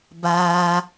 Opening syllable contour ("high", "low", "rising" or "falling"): low